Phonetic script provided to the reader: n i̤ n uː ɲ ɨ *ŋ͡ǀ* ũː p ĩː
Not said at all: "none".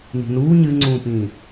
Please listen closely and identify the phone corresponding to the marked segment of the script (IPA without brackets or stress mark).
ŋ͡ǀ